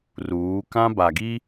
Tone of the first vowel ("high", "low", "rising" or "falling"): rising